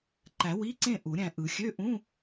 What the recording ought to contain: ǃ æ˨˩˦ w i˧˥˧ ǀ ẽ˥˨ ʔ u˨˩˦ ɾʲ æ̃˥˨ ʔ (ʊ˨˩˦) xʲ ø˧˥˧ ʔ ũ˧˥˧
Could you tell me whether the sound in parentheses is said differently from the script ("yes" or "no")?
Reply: yes